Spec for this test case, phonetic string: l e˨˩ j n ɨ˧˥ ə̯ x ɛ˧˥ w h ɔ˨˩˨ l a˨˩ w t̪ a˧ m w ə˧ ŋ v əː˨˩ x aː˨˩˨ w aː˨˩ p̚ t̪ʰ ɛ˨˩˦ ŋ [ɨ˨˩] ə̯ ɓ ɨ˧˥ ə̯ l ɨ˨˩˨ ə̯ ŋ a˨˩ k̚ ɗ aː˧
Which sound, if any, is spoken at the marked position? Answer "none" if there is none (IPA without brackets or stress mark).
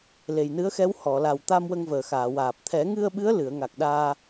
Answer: ɨ˧